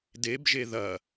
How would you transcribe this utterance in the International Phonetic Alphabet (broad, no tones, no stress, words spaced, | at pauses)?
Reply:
debʒe ðɐ